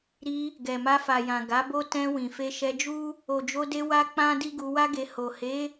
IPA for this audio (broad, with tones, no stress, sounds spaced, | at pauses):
ɾ i˧ | ɡ ɛ˨ m a˧ f a˨ j ã˨ ɡ a˨˦ b o˦ t ɛ̃˧ w ĩ˨ f e˧ ʃ ɛ˧ d͡ʒ u˦ | o˨ d͡ʒ o˧ d e˧ w a˦ k͡p ã˦ d i˦ ɡ u˧ w a˦ ɡ e˧ h o˨ h e˨˦